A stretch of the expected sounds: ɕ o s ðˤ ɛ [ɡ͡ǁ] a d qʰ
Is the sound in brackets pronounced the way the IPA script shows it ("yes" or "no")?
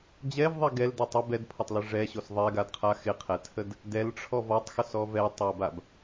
no